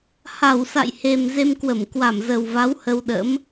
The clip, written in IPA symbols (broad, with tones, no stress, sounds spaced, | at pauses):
h a˧˩ w s a̰˧˨ j h e˨˩ m z e˧ m k w ə˧˩ m k w a˧˩ m z ə˨˩ w v a˨˦ w h ə˧ w ɗ ə̰˧˥ m